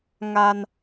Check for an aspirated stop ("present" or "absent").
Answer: absent